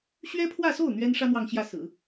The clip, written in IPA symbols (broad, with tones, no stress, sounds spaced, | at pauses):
ɕ ɥ ɛ˥ pʰ w ä˥˧ s o˥˩ ʊ̯ n̪ ɥ ɛ˥ n ʂ ä˥ n̪ w ɑ˥˧ ŋ ɕ j ä˥˩ s ɹ̩˨˩˦